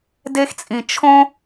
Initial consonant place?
alveolar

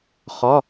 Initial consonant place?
uvular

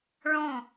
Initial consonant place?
retroflex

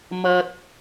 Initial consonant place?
labial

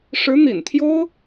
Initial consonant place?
retroflex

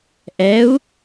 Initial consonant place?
glottal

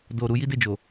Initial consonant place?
alveolar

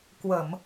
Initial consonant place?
velar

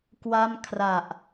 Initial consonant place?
velar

